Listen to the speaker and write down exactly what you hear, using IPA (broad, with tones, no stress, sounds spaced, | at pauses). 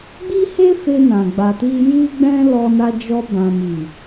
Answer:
ɡ͡b i˦ h e˦ f e˧ n ã˨ ɡ͡b a˨ t i˧ j i˦ ɡ͡b ɛ̃˦ l ɔ˧ n a˧ d͡ʒ ɔ˧ b ã˨ m i˨